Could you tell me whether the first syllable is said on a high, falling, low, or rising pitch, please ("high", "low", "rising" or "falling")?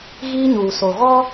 high